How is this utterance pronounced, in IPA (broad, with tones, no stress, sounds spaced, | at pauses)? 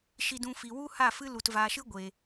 ʃ i˧ d ũ˧ f i˨ w u˦ h a˦˨ f ɨ˦ l u˨ t v aː˨ ʃ ɨ˦ ɡʷ e˨